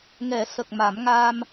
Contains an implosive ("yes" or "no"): no